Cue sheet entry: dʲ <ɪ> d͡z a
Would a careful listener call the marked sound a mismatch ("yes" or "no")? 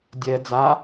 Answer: yes